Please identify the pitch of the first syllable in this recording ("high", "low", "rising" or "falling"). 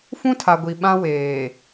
high